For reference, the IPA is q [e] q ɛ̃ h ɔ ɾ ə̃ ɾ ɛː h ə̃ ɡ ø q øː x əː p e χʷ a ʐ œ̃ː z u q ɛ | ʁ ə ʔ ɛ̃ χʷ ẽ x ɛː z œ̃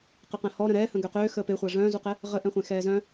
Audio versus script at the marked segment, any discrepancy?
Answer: no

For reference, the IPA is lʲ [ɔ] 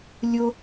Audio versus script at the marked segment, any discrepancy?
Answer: yes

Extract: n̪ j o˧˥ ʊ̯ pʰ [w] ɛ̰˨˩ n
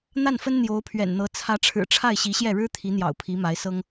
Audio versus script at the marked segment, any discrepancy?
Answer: yes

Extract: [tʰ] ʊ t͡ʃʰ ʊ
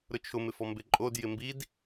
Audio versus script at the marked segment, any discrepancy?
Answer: yes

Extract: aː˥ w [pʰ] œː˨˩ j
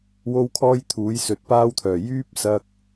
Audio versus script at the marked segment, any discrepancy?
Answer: yes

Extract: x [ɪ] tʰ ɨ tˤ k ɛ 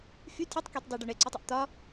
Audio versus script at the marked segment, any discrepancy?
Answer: yes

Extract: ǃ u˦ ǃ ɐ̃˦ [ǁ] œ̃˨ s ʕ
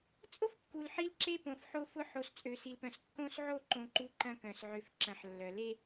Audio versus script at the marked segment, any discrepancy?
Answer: yes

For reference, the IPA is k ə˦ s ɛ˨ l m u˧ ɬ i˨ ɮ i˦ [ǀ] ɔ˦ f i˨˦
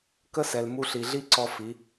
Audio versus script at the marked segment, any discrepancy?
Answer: no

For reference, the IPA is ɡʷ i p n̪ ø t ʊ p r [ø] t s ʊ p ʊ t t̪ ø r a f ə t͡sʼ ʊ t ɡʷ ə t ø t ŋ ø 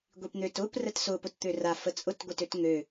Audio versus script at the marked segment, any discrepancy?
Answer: yes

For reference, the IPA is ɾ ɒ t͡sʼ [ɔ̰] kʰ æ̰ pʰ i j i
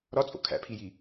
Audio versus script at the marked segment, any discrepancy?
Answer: yes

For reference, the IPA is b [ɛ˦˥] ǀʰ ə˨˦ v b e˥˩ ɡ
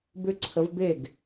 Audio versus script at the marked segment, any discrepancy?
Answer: yes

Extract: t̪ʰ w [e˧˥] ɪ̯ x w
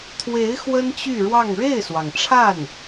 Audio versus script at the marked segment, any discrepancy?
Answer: no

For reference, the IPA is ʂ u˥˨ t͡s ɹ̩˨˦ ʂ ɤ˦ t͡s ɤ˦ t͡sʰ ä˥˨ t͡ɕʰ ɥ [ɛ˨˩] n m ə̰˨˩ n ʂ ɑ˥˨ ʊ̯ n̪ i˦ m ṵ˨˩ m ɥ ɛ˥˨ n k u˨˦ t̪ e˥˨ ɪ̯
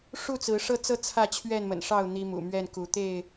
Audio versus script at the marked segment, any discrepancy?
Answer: yes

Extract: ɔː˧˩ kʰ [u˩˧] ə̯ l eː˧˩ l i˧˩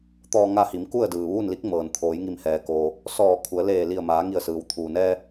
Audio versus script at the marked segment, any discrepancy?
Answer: no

